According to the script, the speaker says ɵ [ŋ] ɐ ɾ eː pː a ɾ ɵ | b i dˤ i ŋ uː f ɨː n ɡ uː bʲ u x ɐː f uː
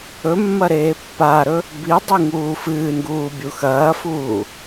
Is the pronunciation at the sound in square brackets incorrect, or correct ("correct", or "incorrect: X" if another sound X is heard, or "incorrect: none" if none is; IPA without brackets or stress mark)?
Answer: incorrect: mː